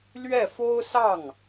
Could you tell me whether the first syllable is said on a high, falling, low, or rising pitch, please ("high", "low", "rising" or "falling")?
falling